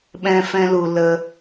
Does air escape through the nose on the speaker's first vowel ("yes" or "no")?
yes